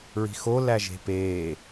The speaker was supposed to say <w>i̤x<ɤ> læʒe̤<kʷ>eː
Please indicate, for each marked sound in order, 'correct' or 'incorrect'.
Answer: incorrect: ɹ, incorrect: o, incorrect: p

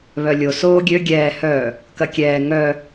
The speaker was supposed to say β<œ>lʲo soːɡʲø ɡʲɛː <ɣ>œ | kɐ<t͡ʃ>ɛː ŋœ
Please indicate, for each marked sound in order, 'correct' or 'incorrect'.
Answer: correct, incorrect: h, incorrect: kʲ

